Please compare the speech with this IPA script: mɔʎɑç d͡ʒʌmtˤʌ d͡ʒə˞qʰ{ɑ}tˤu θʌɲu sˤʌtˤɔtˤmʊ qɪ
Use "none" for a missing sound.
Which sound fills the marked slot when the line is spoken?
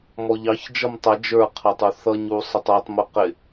ɑ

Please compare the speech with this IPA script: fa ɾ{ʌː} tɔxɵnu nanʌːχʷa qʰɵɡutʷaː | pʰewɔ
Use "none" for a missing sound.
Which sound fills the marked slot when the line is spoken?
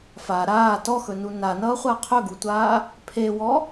aː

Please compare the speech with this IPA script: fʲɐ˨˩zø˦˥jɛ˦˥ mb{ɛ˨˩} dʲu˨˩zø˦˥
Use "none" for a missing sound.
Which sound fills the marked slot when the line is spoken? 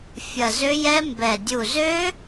ɛ˨˩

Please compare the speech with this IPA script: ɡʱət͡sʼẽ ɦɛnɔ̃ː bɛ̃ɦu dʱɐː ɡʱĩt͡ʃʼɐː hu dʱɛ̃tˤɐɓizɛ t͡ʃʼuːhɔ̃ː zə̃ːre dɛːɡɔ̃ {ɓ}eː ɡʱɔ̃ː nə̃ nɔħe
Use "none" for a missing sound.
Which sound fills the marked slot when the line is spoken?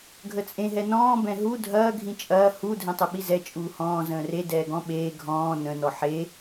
ɓ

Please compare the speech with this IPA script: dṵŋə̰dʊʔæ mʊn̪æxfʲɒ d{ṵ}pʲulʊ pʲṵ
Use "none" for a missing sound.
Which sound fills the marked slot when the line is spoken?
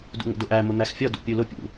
ṵ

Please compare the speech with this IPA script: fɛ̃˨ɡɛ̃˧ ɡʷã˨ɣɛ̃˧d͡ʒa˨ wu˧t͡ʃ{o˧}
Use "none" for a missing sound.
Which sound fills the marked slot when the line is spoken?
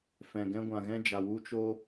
o˧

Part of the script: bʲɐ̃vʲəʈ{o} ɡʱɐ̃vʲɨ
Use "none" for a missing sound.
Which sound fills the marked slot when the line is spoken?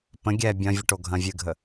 o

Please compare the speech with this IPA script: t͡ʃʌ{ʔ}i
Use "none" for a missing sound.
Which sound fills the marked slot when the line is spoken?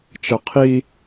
qʰ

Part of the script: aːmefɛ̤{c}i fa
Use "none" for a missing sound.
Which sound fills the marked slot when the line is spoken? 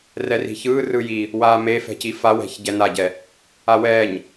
c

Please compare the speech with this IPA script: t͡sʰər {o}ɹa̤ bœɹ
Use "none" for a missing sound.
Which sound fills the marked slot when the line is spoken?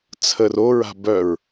o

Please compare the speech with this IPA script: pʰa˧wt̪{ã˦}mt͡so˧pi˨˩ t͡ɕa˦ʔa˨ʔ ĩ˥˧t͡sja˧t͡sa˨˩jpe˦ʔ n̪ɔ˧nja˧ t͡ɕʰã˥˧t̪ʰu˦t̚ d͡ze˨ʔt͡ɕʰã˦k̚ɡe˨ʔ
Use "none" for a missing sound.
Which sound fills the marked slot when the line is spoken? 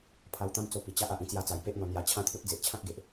ã˦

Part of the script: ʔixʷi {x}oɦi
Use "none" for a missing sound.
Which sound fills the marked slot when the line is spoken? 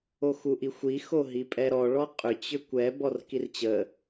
x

